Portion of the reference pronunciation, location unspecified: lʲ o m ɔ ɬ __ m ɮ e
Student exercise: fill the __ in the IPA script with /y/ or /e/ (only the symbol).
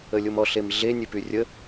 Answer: e